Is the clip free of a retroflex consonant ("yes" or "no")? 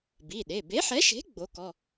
yes